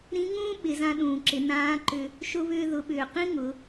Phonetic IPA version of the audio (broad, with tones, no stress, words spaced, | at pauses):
ɾĩ˧˥ŋũː˥ ɓɪ˩˧zã˧ɗũː˩ǁɪ˩˧ nãː˧˥ ǃʏ˧ | ʃʊ˧βʏː˧ ðʊ˩˧ɓʏː˩ qĩ˥ ŋʊ˩˧